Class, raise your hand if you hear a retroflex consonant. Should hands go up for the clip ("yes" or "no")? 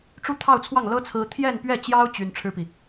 yes